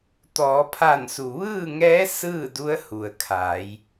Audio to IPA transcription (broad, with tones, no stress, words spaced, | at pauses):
t̪ɔː˩˧pʰa˧˩nsu˩ ʋɯː˥˨ŋɛː˧˥ sɯː˥˨du˧˥ə̯ hu˩ə̯kʰa˩˧j